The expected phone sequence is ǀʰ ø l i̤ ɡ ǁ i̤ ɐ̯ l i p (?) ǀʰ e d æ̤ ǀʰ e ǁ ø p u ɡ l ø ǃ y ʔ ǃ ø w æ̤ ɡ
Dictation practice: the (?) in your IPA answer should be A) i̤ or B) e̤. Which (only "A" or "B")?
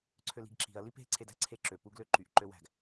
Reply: B